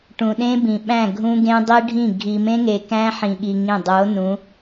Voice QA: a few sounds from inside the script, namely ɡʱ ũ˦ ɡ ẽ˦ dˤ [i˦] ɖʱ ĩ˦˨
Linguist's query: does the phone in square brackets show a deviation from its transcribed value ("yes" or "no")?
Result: no